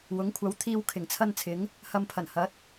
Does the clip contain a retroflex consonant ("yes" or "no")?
no